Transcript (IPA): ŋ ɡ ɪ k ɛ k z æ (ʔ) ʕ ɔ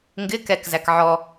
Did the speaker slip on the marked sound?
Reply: yes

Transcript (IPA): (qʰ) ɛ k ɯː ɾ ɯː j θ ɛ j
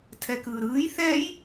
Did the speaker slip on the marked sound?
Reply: yes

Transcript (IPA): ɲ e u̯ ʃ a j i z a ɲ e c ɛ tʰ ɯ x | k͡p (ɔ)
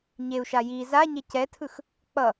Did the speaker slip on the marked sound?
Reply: yes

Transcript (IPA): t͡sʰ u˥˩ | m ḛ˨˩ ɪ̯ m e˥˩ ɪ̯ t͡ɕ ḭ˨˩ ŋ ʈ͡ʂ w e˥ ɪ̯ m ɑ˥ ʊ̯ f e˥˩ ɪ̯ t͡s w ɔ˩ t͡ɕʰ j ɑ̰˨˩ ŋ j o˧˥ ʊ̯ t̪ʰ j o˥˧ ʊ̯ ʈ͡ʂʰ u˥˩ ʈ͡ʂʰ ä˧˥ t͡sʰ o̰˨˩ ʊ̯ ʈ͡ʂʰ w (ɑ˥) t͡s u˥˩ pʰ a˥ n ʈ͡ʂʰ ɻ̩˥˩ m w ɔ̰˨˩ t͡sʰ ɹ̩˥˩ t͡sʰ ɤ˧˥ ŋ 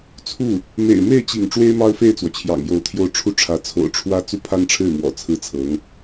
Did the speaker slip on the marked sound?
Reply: yes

